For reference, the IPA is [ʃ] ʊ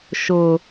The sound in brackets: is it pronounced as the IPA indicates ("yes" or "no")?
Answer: yes